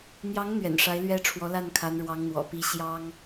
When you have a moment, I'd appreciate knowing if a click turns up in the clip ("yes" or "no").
no